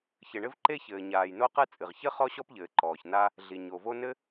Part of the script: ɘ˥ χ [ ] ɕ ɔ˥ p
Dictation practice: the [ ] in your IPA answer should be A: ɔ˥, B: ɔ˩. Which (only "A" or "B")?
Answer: A